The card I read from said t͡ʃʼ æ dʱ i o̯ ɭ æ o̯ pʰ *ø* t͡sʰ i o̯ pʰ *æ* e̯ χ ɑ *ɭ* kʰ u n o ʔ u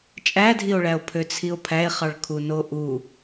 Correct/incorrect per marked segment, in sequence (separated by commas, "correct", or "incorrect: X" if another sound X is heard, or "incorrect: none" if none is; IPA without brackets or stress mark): correct, correct, correct